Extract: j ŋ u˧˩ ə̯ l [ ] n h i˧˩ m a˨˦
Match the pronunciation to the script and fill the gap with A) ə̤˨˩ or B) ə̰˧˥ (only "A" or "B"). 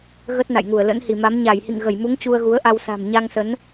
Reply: B